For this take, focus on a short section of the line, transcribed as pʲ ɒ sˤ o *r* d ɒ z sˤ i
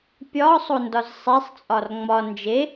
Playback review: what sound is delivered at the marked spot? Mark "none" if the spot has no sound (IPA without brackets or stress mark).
n